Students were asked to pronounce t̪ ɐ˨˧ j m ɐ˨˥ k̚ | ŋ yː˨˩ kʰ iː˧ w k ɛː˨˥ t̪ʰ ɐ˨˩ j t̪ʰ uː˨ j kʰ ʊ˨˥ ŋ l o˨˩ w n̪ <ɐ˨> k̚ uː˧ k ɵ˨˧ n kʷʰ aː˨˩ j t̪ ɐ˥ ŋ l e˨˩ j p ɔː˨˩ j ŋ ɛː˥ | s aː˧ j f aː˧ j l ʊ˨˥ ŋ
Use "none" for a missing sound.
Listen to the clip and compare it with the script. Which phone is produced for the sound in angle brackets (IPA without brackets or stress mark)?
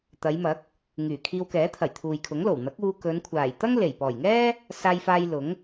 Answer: ɐ˨˥